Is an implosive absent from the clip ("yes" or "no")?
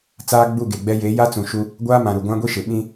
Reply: no